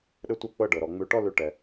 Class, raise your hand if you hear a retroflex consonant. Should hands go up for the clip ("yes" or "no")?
yes